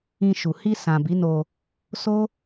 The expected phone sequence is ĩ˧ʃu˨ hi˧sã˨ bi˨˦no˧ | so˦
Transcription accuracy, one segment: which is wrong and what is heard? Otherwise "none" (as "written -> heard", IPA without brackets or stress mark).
none